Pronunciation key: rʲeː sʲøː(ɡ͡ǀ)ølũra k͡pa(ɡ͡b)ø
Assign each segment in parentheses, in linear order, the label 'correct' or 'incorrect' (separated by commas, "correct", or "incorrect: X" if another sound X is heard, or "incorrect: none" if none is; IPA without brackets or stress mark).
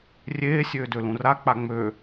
incorrect: d, incorrect: ŋ͡m